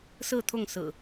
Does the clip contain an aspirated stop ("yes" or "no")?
yes